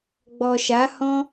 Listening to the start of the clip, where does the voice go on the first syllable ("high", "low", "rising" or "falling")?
low